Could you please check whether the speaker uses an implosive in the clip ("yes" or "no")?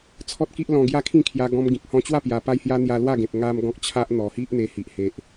no